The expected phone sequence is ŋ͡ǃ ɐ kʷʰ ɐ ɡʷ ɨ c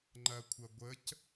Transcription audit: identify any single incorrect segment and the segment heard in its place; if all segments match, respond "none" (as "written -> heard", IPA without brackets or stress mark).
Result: ɨ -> ə